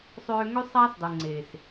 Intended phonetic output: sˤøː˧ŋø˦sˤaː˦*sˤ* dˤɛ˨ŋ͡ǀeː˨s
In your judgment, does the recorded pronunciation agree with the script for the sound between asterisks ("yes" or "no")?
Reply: no